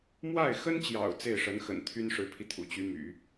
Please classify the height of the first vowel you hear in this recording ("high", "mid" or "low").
low